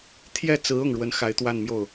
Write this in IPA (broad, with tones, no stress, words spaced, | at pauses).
t̪ʰjɛ˥˩t͡sɹ̩˧˥ ʊ˥˩ŋɻwə˥n xa˧˥ɪ̯t̪wa˥˧nmjo˥˩ʊ̯